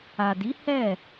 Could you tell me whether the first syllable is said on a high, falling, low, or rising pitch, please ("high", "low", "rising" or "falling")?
low